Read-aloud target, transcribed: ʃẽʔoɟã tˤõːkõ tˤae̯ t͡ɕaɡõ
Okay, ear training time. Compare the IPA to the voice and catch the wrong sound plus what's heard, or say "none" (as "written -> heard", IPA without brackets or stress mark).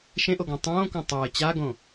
ɟ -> ɡ